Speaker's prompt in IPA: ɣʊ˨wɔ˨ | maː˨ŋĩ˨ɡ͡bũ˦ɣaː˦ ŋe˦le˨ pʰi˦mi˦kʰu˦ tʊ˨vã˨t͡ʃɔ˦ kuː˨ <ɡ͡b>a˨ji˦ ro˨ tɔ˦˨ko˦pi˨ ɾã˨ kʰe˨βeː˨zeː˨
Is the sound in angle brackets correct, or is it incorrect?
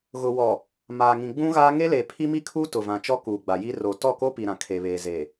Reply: correct